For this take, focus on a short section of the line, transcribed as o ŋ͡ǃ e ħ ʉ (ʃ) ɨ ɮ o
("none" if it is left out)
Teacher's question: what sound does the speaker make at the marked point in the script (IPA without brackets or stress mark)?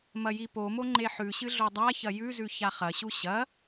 ɕ